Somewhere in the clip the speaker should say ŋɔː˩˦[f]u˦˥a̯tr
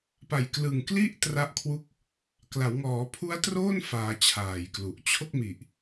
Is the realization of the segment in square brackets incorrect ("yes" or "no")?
yes